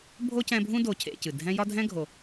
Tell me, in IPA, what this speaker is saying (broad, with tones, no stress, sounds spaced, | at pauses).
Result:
bʱ o˥ c ɛ̃˦ bʱ ũ˥ d o˨ cʰ ḛ˨ c ɨ˩ dʱ ɛ̃˦ j ɒ˥ dʱ ɛ̃˥ ɡʱ o˨